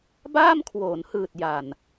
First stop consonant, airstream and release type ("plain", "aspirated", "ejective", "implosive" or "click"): plain